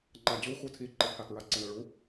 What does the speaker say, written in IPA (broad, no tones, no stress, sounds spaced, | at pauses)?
ŋ͡ǃ a d͡ʑ u x u tʰ i ǃ i pʰ a k ɹ a ǀ ə ɳ ə ɭ u